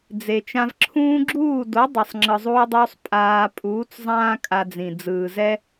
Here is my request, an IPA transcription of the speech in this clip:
d͡z e˨ t͡ʃ ã˧ v ǁʰ ũː˧ ɡ͡ǁ uː˦˨ d o˨˦ dˤ ɛ˨ sˤ ŋ͡ǁ ɯ˨ zˤ uː˧ dˤ uː˧ sˤ pʼ aː˧ pʼ uː˨˦ t͡s zˤ ãː˦ kʼ a˧ d͡z ĩ˨ d͡z ɯː˨ z ɛ˦

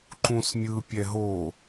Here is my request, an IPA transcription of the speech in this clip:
ǃ ũ s mʲ ɯ pʲ ɛ ɦ o

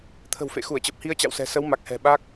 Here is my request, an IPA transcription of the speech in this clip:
t̪ʰ ə̤˨˩ w f ḛ˧˨ x u˧˩ ə̯ t͡ɕ ə˨˩ p̚ h i˧ ə̯ t͡ɕ a̰˧˨ w s ɛ̤˨˩ s ə˨˦ w m a˨˩ k̚ h ɛ̤˨˩ ɓ a˦˥ k̚

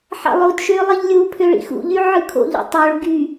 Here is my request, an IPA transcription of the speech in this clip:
ħ ɑ̰ lˠ o d ʃ ø lˠ i ʎ lʲ u pʰ ø ɭ ḭ x ṵ ʎ y ʕ ɯ kʰ o̰ ʎ ṵ tˤ o ɭ ɡ y

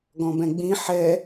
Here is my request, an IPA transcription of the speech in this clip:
ɡ ɔ̃ b ɛ̃ ɡ͡b ĩ ħ ɛ

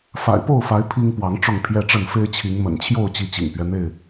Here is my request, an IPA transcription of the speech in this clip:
f a̰˨˩ ɪ̯ p o˥˨ ʊ̯ f a˨˦ ɪ̯ pʰ i˦ ŋ p w ɑ˨˦ ŋ ʈ͡ʂ ʊ˥˨ ŋ pʰ j ɛ˦ ʈ͡ʂ ə˥˨ n f e˦ ɪ̯ t͡ɕʰ i˨˦ ŋ m ə̰˨˩ n t͡ɕʰ j o˥˨ ʊ̯ t͡ɕ i˨˦ t͡ɕ ḭ˨˩ ŋ p ɥ ɛ˦ n̪ e˥˨ ɪ̯

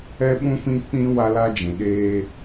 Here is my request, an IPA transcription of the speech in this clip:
ɛ˦ ɓ ũ˦ f ĩ˦ k͡p ĩ˦ w a˦ l a˦ d͡ʒ ĩ˨ ɗ eː˦

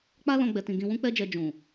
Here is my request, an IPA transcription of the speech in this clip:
k͡p a˦ l ɔ̃˦ ɡ͡b ɛ˧ t ĩ˧ ɡ ĩ˧ w ũ˦ k͡p ɛ˦ d͡ʒ ɛ˧ d͡ʒ ũ˨

